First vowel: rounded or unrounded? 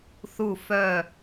rounded